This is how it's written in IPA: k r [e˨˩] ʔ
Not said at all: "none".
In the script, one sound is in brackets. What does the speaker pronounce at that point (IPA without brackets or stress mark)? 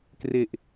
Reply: e˨˩